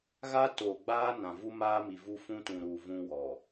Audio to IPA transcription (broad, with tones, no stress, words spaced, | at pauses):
ɣa˦ toː˨ɡ͡baː˦nã˨ vu˦maː˦mi˨ vu˦fũ˦tũ˨ɾuː˨ vũ˦wɔ˨